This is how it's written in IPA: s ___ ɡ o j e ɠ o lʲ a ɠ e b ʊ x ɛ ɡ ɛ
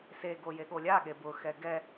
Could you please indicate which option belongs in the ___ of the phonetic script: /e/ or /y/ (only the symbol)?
e